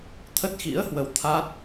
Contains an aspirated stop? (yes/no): yes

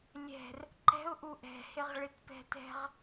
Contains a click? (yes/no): yes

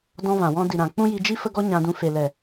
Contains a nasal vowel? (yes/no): yes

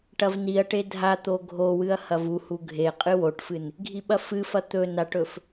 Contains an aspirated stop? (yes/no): no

